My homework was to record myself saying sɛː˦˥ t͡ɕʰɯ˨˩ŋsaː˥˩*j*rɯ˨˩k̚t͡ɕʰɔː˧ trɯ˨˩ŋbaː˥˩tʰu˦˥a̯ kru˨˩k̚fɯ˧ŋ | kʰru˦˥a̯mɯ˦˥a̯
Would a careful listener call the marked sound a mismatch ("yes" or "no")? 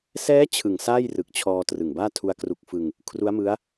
no